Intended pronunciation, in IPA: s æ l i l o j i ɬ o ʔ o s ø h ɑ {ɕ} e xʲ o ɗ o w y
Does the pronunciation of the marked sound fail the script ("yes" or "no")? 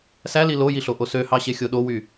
no